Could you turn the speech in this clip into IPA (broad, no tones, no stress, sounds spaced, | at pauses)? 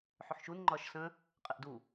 ħ ʏ ħ ʃ u n ŋ͡ǃ ɒː ʃ s ə̃ | qʼ ɪ ʔ d u